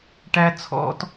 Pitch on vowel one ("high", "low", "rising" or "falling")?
high